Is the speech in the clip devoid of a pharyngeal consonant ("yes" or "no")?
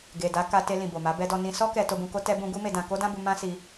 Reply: yes